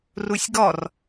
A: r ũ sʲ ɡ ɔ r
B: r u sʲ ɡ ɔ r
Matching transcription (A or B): B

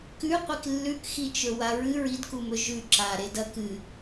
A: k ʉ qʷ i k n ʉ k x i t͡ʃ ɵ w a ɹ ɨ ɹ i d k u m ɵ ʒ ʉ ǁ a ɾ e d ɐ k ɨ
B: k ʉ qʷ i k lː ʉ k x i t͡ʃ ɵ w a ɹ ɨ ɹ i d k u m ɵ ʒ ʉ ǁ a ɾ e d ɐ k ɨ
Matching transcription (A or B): B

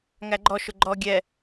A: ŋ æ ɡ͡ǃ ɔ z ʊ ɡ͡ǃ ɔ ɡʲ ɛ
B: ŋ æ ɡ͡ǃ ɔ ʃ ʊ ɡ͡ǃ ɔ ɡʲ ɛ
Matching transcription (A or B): B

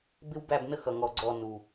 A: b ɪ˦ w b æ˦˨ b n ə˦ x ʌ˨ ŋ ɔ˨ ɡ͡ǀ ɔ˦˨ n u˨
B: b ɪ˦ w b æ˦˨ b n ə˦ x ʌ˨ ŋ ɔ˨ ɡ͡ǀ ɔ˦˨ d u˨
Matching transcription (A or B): A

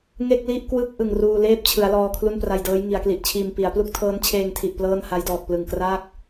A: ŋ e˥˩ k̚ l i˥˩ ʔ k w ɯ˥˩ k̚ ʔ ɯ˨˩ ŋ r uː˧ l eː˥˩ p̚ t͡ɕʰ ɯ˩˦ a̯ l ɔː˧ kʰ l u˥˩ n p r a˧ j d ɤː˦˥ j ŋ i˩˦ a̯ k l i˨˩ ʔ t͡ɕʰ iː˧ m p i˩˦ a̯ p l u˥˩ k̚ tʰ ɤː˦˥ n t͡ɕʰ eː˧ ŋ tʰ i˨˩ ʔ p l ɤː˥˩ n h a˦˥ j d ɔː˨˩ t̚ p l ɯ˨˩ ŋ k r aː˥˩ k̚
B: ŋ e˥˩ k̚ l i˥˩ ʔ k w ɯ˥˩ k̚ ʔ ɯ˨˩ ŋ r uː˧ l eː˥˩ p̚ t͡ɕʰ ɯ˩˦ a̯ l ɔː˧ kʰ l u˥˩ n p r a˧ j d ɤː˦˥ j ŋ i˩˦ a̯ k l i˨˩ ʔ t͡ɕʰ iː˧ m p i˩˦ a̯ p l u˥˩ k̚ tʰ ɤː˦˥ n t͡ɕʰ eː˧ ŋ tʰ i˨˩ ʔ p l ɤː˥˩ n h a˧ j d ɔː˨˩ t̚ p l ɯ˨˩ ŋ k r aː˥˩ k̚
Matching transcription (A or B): A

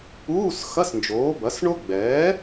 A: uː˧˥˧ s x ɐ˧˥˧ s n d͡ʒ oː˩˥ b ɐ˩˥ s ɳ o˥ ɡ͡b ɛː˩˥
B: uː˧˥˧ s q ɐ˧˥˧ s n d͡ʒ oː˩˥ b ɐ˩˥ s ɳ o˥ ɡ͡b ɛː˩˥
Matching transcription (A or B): A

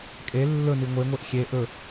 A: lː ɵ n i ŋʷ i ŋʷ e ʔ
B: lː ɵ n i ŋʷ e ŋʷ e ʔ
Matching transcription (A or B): B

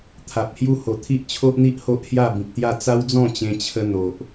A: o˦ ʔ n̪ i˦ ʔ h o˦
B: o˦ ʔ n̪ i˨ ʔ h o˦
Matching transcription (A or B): A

